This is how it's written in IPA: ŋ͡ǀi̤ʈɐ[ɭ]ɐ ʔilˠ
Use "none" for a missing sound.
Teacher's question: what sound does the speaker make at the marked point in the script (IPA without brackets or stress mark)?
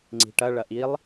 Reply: ɭ